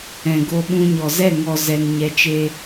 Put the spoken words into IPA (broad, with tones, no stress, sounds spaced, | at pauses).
ɛ̃˨ ɡ o˧ ɓ ũ˧ ɲ ɔ˨ z ɛ˦˨ ŋ ɔ˨ z ɛ˨ n ɲ ɛ˨ t͡ʃ e˧